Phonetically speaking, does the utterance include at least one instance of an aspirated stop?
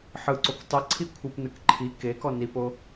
yes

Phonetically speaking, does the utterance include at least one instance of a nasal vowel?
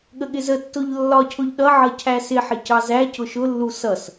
no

